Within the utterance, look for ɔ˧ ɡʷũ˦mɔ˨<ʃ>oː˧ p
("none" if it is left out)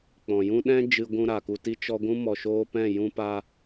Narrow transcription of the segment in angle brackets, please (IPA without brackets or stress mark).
ʃ